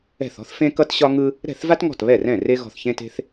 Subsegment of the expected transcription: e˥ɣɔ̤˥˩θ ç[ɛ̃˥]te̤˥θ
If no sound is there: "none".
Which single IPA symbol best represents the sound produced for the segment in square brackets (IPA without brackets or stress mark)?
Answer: ẽ˥